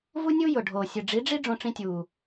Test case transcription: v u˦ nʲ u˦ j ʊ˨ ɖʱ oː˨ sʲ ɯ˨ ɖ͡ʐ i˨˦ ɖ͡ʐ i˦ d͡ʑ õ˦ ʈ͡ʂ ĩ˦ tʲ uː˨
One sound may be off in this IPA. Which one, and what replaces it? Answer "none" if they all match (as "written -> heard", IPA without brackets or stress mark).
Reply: d͡ʑ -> ɖ͡ʐ